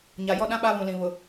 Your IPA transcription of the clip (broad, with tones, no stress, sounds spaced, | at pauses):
ɲ a˨ j ɔ˦ ɗ ã˦ ɓ a˦ β ũ˨ l ĩ˨ β ʊ˨